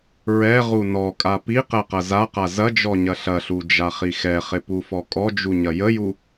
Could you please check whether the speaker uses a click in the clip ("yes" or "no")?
no